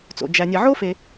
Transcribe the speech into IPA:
t͡so̰˩d͡ʒæ˨nʲe˨ ʕo˥fe˨

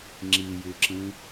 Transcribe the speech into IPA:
ŋ͡ǁijʉǁĩ

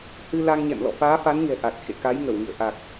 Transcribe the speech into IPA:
hɨ˧ la˧ŋɲɛ̰˧˨m lɔ̰˧˨faː˨˦fa˨˦nɲɛ̤˨˩ ʔa˨˩t̚ xḛ˧˨ka˨˦jŋə˧˩wŋḭ˧˨ə̯ ʔa˨˩k̚

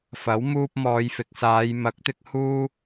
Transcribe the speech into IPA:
fɐ˨˥w muː˧p̚mɔː˨˧jfɪ˨k̚ saː˨˧jmɐ˨˥k̚t̪ɪ˧k̚ huː˥

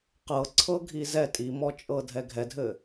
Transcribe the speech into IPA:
qɤǀʰɤ ɡʱizɛ tʼimɔt͡ʃʼɤ dʱɛɡʱɛdʱɘ

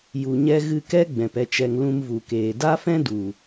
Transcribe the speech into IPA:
ju˨ɲɛ˧ ɣɨ˧kɛ˦ ɡ͡bɛ̃˨pɛ˧t͡ʃɛ˧ŋ lũ˧mvu˨keː˨ da˦fɛ̃˦du˨

